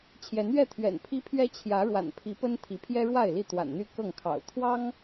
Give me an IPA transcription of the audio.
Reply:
t͡ɕʰjɛ˨˦nɥɛ˥˨t̪ʰɥɛ̰˨˩n pʰi˦pʰɥɛ˦ t͡ɕʰjä˨˦ɻwa̰˨˩npʰi˨˦pə˦n t̪ʰi˨˦pʰjɛ˦ɻwa˥˨ɪ̯li˥˨ t̪wa̰˨˩nn̪y˥˨ kɤ˥˨ŋkʰɑ̰˨˩ʊ̯ t̪ʰwɑ˦ŋ

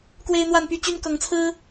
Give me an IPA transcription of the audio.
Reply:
kwe˦ɪ̯ n̪wa˥˨npy˥˨t͡ɕy˦n kɤ˨˦ŋt͡sʰɹ̩˦

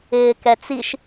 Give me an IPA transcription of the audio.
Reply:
ɪːkɛt͡siʃ

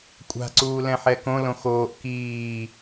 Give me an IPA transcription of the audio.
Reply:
kʷʼa̤ǀuːlɛ̃ħɛ kõlõ xoːʔ kiː

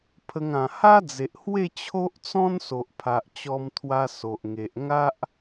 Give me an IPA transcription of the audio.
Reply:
pʰə˧ŋ ã˨˩ha˦d͡ze˨ʔhwe˥˧ t͡ɕʰo˦ʔt͡sɔ̃˦n so˨ʔpʰa˨ʔ t͡ɕɔ˧mt̪ʰwa˧ so˨ʔ ŋe˨ʔŋa˦ʔ

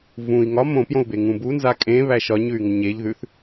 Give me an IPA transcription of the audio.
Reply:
vũi̯ ŋɒ mõpjõu̯be ŋũbunza kʼẽ βæʃɒɲʉy̯ŋə ɲeʎðʉθ

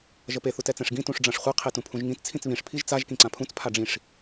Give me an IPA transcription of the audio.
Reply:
ʒʌpe θutɛt͡sɛ̃ʂɡĩ tũʂɖ͡ʐãʂχʷe qʰetũpʰũʒŋĩt t͡sʰĩt͡sβĩʂ pʰiʒt͡saʒ kĩǀãpʰũt͡s pʰaɖ͡ʐĩʂ

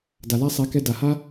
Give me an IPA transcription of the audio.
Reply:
da˨la˦sˤɛ˨˦kɛ˧ da˨ha˦

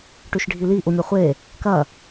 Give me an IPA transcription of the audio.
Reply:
ʈʉʃɖʱili ʔumʲɐχʷe | kɐ

